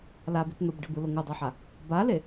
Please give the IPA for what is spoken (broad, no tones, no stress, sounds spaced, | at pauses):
l a b i t n o b ɖ i b ɯ l o ŋ o dˤ a ħ a | b a l e